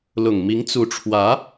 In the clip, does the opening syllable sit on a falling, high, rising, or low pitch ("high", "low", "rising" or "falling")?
low